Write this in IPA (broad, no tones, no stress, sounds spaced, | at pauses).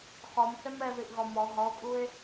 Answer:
χ ɔ m s ɛ m ɛ ð i ʔ ɣ ɔ m ɔ ɦ ɔ o̯ kʼ u e̯